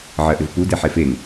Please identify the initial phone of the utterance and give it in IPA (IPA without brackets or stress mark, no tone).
ʕ